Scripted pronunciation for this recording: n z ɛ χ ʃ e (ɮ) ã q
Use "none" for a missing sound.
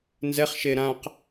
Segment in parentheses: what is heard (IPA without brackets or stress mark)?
ɾ